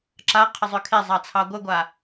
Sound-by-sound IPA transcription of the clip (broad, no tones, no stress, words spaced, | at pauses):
ǁaqʰəzˤø kʰezˤɑt͡sʰɑ ɡʷəɡʷa